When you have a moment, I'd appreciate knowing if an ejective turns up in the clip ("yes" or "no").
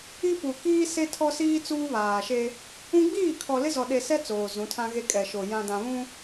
yes